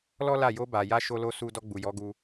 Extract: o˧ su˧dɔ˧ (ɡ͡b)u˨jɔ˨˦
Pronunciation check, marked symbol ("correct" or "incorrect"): correct